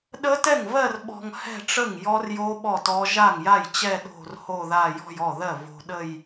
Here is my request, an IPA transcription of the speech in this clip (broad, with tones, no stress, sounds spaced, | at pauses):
ɗ ə˦˥ t ɛ˥˩ ŋ v ɜ˥˧ r ɓ ɔ̤˧ ŋ h ɛ̤˥˧ ʈ͡ʂ ə˥˩ ŋ j ɔ˦˥ r j o˦˥ ɓ ɔ˥˩ t ɔ˦˥ ʒ a˥˩ ŋ j a˥˩ j t͡ɕ ɛ˥˧ ɗ o̤˥˧ r h o˥˧ ð a˥˧ j ɔ̤˥˧ j ɔ˥˩ ð ɜ˥˩ v o̤˧ ɗ ə˥˧ j